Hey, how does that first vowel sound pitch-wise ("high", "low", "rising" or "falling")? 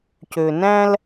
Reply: low